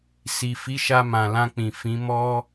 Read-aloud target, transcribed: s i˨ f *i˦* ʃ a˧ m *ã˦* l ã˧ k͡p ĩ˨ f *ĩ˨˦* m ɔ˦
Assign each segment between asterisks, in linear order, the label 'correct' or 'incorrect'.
incorrect: i˨˦, incorrect: ã˨, correct

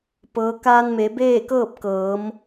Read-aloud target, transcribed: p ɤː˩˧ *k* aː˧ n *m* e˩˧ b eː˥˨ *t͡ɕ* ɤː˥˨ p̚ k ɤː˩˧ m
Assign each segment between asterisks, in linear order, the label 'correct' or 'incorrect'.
correct, correct, incorrect: k

